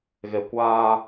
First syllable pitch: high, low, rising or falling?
low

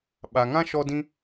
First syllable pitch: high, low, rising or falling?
low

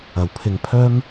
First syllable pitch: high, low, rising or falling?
low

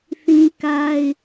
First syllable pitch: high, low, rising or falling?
high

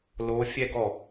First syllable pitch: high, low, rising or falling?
rising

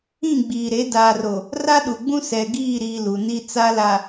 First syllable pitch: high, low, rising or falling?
falling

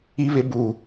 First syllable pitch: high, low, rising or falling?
high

